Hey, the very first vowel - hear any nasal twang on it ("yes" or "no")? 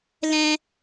yes